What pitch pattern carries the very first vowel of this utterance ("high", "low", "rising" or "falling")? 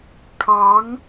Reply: rising